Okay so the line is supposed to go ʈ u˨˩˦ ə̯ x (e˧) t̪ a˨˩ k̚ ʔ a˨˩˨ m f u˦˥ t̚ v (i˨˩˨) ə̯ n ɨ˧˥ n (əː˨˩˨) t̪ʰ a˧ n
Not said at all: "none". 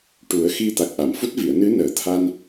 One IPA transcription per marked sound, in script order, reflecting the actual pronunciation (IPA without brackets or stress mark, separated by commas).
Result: i˧, i˨˩˨, əː˨˩˦